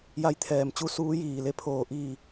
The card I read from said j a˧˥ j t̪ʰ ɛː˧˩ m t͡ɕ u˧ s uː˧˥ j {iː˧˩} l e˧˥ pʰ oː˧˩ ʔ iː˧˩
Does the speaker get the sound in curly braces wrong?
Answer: no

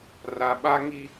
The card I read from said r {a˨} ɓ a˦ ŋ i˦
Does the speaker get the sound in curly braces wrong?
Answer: no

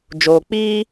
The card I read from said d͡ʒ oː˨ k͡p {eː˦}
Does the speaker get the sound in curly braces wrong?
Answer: yes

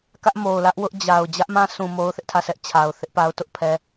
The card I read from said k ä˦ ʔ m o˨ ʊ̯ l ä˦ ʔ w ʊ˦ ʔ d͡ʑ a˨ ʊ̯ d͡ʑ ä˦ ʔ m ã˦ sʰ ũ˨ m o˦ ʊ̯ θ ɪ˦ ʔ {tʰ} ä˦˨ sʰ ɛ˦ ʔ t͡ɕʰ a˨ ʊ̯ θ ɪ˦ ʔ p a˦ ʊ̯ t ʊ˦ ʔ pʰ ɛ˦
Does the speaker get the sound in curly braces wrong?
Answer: no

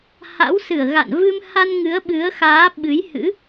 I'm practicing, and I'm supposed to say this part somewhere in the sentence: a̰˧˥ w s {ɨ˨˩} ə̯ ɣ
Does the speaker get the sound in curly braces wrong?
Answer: yes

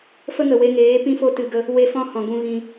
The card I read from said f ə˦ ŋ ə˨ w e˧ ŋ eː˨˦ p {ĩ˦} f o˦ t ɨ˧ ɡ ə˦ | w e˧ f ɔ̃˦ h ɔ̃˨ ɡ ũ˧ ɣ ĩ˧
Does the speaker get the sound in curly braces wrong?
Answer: no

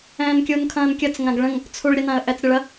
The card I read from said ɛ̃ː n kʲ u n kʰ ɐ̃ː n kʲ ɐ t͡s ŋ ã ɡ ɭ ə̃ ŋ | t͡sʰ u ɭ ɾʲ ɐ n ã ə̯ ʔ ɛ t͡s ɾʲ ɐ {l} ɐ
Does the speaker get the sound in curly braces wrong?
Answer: yes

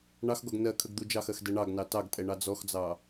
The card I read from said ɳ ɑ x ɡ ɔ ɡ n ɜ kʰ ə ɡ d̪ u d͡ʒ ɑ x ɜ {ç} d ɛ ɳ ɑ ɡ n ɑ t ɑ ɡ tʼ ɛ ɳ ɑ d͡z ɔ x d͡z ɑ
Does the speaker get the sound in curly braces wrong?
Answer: yes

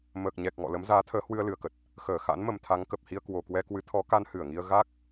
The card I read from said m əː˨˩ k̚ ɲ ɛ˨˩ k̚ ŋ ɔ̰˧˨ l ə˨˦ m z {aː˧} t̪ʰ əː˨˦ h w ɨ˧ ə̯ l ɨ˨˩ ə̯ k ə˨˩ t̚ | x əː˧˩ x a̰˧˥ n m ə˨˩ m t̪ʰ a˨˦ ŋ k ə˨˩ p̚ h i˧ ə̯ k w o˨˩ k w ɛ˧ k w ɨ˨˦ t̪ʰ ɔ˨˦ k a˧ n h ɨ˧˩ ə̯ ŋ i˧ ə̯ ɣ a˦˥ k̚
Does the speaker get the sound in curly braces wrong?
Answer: yes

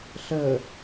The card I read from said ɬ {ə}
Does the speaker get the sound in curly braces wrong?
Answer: no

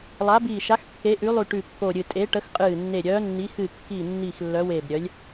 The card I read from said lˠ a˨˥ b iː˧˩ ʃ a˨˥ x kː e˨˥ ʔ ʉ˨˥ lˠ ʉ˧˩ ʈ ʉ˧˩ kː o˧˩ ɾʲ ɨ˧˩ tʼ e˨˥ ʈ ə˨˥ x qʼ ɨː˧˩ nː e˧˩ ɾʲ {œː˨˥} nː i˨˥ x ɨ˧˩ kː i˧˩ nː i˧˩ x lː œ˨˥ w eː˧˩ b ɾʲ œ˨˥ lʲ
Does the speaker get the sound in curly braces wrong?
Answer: no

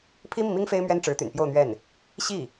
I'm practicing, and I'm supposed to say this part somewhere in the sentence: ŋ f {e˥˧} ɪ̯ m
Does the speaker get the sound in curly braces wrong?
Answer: yes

